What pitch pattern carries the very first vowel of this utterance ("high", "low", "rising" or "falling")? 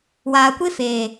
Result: low